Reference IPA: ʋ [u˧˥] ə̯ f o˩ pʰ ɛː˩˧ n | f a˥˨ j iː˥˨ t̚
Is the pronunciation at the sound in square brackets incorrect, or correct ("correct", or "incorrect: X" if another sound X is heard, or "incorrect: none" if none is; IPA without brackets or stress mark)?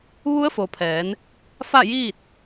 correct